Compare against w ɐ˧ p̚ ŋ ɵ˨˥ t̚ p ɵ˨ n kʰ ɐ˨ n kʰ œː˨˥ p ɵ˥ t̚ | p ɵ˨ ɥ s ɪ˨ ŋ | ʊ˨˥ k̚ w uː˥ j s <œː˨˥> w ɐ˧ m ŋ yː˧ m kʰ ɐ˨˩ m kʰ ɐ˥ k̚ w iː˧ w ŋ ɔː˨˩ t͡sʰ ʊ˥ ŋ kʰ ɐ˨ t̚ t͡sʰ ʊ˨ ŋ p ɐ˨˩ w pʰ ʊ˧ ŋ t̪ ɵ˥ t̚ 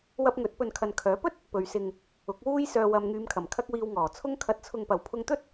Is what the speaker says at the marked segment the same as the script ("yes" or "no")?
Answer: no